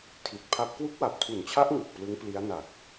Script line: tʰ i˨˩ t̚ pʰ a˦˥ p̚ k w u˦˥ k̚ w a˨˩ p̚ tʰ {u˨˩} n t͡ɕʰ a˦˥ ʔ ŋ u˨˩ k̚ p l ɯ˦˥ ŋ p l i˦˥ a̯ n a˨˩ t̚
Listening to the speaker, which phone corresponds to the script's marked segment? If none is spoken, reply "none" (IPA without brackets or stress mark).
u˨˩